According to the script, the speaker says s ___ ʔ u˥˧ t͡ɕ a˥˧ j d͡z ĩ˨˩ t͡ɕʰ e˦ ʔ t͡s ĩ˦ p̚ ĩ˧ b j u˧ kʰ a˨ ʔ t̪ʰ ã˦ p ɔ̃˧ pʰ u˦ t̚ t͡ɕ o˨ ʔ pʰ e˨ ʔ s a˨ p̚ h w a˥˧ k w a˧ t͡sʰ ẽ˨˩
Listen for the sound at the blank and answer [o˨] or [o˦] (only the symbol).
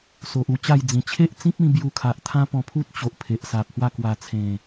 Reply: o˨